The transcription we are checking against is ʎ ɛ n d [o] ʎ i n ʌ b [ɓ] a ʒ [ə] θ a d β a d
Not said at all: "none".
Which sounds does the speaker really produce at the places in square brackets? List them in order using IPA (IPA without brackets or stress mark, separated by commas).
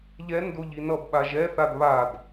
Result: o, ɓ, ɛ